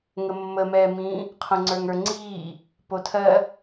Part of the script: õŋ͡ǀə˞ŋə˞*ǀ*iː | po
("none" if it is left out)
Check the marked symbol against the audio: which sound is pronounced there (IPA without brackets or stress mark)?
ŋ͡ǀ